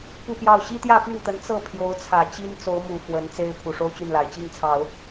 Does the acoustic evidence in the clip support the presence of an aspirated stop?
yes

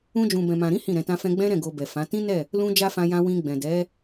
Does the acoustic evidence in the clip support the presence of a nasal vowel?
yes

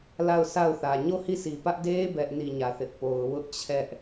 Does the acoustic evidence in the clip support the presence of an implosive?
no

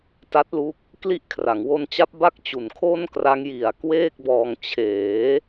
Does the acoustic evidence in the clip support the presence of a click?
no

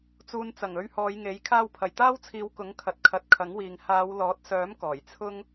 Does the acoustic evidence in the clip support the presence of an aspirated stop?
yes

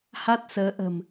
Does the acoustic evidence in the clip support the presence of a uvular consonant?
no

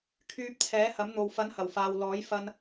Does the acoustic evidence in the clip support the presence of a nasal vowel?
no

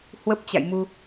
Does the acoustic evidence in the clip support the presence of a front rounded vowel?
no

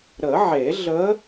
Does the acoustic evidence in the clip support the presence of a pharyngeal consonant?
yes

